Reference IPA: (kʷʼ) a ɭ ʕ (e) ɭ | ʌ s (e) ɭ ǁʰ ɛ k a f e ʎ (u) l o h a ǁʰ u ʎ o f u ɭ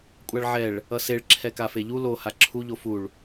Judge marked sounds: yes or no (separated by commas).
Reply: yes, no, yes, yes